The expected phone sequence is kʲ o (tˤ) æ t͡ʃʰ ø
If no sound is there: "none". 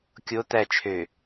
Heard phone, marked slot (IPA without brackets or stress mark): t̪